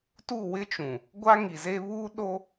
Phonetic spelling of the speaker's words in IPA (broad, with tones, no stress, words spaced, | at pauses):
tu˦˨ wɪ˦t͡ʃũ˨ | ɡʷa˦ŋi˨ze˦ βuː˦ɗo˦